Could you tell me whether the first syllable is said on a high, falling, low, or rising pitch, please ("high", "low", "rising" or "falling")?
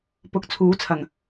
rising